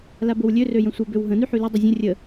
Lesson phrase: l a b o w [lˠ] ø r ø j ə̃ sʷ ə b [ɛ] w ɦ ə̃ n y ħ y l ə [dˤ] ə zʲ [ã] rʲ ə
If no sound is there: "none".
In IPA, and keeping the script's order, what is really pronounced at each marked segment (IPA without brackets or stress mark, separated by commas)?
lʲ, ø, dˤ, ə̃